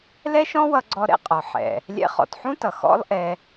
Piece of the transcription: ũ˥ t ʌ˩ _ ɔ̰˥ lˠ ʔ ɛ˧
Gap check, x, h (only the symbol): x